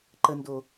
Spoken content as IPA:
ǃ ə n d o

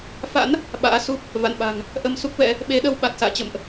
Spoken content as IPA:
f a̰˧˥ n | ɓ a̰ː˧˥ s u˦˥ p̚ | v a̰˧˨ n ɓ a̤˨˩ ŋ | ʔ ə˧ m s u˦˥ k̚ v ɛ̰˧˥ | ɓ e˨˦ ɗ ə˧ w ɓ a˨˩ t̚ s a̰ː˧˨ t͡ɕ ə̰˧˨ m ʔ

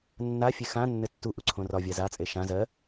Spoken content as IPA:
nː a fʲ e x ã nː ɘ tː u ʔ u ǀʰ õ r ɒ vʲ a z a t͡sʼ e ʃ ã z ɜ

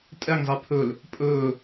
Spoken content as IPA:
tʼ ɛ ŋ zˤ i pʰ ɵ l | pʼ ɵː

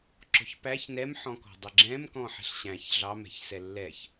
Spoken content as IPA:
ǁ ɔ̤ ç p æ ç n ɛ m ħ ɔ̃ k ɔ̤ dˤ ɪ ɡ͡ǁ ɛ̃ m k ɔ̃ ħ ɛ̤ ɬ ɕ æ̃ ç ɮ ɑ m ɛ̤ ç s ɛ lː ɛ ç

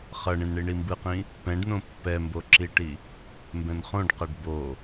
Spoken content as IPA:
χ ʌ ɳ ĩ n ɳ i ɳ i m b ɯ q ĩ | p ɛ̃ ɖ n õ pː ɛ m b o ǁ i ʈ i | m b ɛ̃ n χ õ ɖ q a ɖ b o

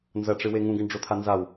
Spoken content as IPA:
n z ɐ ʈ͡ʂ ɨ w e ŋ ũ ɡ ɘ ɳ ɖ͡ʐ o t̪ʰ a n z a w

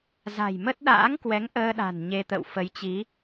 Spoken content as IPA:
z a̤˨˩ j m ə˦˥ t̚ ɗ a̰ː˧˥ ŋ k w ɛ˨˦ ŋ ʔ əː˧ ɗ a̤˨˩ n ɲ e˧ t̪ ə̰˧˨ w f ə˨˦ j t͡ɕ i˨˦

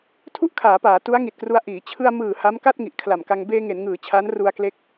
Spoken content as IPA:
tʰ u˥˩ ʔ kʰ aː˩˦ p aː˩˦ t u˦˥ a̯ ŋ i˨˩ t̚ k r u˧ a̯ ʔ iː˩˦ t͡ɕʰ ɯ˧ a̯ m ɯː˨˩ h a˦˥ m k a˥˩ t̚ ŋ i˨˩ ʔ kʰ l a˨˩ m k a˧ ŋ b eː˧ ŋ e˩˦ n ŋ ɯː˩˦ t͡ɕʰ a˦˥ n r u˧ a̯ k l e˦˥ k̚

